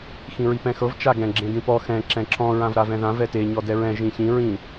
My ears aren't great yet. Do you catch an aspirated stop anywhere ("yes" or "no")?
no